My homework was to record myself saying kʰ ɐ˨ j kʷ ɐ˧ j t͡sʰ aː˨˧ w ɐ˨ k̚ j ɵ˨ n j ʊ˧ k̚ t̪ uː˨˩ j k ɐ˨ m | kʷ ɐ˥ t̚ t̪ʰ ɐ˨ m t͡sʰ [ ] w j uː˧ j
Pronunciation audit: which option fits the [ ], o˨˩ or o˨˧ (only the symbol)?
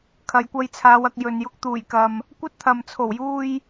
o˨˩